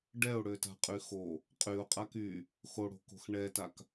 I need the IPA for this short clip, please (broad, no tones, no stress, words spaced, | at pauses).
ɖɛʊ̯ɽøta̤qʼy xo | qʼyʊ̯qʼak y | xoɽo̤ko̤x ɳɛtak